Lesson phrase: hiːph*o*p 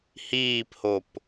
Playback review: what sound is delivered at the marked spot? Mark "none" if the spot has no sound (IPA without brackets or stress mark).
o